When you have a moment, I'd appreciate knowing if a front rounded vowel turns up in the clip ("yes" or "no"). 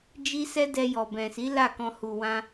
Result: no